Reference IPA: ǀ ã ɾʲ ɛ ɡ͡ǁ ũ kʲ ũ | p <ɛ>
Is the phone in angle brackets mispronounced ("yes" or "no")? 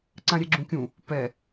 no